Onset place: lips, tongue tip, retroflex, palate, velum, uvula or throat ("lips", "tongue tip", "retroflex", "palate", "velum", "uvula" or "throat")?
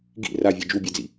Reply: velum